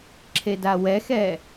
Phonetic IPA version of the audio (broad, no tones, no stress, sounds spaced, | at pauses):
ǁʰ e d a w ɛ x ɛ